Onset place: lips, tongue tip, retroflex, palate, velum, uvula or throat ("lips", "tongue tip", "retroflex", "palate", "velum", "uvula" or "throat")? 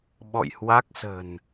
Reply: lips